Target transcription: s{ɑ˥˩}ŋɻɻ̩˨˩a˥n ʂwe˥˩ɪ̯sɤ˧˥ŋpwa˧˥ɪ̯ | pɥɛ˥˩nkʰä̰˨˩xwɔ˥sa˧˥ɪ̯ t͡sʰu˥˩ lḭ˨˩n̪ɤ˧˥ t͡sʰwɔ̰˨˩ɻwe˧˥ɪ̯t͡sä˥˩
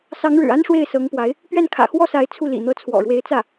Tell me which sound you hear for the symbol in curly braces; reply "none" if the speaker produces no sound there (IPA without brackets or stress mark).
ɑ˧˥